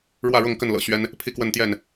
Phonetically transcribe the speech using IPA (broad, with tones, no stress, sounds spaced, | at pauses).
ɻ w ä˥˨ ɻ ʊ˥˨ ŋ k ə˥˨ n l ɤ̰˨˩ ɕ ɥ ɛ˦ n | pʰ i˥˨ k w ə˥˨ n t̪ j ɛ˥˨ n